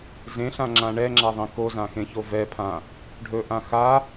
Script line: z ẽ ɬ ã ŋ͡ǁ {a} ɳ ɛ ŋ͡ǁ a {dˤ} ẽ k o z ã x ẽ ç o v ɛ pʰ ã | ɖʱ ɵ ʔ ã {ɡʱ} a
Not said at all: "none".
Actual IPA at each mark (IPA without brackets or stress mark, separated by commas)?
ã, ðˤ, x